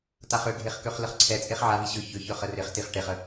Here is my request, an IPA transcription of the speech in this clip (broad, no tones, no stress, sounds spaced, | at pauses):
t a χ ʏ ɡʱ e χ k ø χ l ə χ ǀʰ ɛ t͡sʼ e χ ʕ a v i ɕ ʏ ç ʏ ç œ χ ə r ɪ χ t i χ ʈ e χ ə